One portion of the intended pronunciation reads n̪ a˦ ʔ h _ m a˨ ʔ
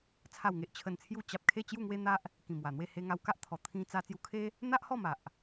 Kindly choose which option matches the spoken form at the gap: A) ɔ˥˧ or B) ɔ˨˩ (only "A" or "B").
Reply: A